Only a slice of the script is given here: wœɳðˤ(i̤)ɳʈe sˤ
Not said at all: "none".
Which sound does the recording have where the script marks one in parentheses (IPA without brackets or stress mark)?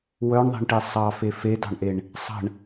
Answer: e̤